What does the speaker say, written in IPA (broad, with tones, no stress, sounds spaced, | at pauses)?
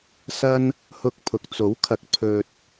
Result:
s ɐ˥ n | h ʊ˧ k̚ pʰ ʊ˨ k̚ t͡s o˨˥ w kʰ ɐ˨˥ k̚ pʰ ɵ˧ t̚